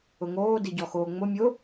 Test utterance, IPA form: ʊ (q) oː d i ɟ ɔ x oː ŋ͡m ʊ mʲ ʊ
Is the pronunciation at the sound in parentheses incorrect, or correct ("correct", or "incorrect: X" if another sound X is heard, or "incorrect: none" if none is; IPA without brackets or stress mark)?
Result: incorrect: ŋ